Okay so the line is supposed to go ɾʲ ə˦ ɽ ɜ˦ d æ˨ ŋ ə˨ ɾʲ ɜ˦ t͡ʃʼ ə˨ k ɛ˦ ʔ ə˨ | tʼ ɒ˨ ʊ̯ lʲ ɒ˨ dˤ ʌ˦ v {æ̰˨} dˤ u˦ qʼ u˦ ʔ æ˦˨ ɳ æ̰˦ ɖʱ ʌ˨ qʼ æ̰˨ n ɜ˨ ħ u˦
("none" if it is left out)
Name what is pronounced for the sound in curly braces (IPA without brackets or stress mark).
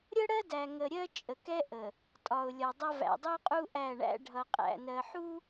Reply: æ̰˨